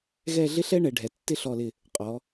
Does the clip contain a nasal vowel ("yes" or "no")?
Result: no